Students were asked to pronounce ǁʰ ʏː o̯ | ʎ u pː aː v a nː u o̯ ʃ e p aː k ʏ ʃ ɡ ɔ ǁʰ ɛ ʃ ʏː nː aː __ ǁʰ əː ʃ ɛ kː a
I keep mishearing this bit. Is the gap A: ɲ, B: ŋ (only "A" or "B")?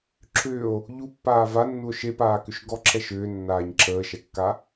A